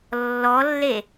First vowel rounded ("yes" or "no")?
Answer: yes